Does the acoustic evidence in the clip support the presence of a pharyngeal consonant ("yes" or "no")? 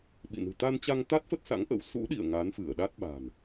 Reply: no